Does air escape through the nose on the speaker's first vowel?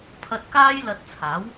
no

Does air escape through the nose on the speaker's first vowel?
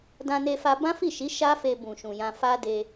yes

